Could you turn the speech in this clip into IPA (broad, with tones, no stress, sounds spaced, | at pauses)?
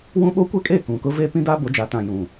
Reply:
w ũ˦ ɓ o˦ kʷ ɛ˦ kʼ e˦˨ k ũ˨ k ʊ˦ v e˦ p ĩ˦ d a˦ b o˨˦ d͡ʒ a˨˦ t ã˨ j ũ˨